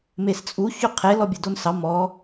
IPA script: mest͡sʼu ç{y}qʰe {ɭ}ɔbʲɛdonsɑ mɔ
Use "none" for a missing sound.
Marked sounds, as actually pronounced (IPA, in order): y, l

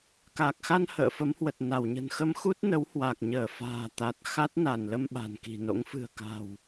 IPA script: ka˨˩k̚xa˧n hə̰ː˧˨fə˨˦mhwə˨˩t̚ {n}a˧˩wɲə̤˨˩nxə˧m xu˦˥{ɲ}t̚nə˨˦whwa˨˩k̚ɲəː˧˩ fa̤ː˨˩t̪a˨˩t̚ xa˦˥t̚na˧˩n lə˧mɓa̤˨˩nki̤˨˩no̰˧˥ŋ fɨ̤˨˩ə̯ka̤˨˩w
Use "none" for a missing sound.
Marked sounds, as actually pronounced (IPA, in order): n, none

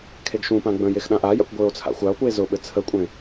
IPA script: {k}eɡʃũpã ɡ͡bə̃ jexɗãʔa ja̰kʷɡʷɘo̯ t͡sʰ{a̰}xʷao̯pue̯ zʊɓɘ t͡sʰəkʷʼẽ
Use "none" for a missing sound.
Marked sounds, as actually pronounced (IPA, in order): kʰ, a̰

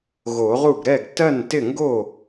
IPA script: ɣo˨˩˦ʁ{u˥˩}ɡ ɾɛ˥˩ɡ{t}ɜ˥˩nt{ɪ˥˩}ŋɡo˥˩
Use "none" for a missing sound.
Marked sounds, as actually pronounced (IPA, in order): u˥˩, t, ɪ˥˩

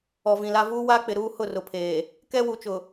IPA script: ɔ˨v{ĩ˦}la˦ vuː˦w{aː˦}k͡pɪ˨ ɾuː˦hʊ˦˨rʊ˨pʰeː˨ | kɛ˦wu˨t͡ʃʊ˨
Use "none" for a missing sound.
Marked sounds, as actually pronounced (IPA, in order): ĩ˨, aː˦

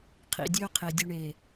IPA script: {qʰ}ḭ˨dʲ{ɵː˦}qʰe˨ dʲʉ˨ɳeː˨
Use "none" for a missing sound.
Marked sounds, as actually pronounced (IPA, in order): qʰ, ɵː˦

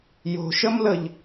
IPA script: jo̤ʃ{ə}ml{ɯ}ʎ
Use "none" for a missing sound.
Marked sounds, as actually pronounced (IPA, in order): ə, ə

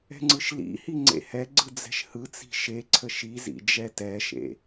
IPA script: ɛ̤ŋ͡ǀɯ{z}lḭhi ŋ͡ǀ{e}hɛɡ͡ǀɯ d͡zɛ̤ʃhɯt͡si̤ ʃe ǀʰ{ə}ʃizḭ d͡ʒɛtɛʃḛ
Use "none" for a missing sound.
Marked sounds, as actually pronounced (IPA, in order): ʃ, ḛ, ə

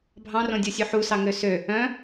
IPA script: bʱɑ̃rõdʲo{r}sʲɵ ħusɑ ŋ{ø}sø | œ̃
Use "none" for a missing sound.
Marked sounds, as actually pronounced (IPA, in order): none, ø

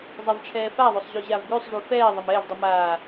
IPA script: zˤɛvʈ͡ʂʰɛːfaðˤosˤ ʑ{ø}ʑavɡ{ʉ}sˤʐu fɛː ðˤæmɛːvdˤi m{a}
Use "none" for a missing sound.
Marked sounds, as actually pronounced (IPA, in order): ø, ʉ, aː

